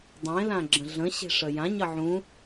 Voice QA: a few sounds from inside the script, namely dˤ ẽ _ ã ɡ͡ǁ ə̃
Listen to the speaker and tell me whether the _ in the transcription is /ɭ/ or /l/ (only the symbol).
l